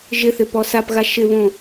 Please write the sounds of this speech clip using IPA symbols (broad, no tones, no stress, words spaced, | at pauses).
ʒɪθɪpɔ sapɣa ʃɪβõ